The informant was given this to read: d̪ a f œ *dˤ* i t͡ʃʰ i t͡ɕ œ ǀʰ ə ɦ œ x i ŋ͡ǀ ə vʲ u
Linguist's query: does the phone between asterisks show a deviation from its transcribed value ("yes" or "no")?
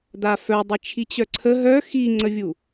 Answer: no